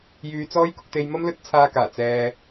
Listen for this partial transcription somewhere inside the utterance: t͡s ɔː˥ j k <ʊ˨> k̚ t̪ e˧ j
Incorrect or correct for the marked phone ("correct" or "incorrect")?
incorrect